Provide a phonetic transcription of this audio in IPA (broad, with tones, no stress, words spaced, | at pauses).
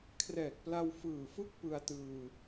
kʰrɛː˨˩k̚pla˧w fɯː˨˩fɯ˥˩k̚ pɯ˧a̯tɯː˧